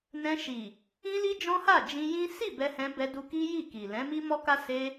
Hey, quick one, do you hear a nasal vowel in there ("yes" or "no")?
yes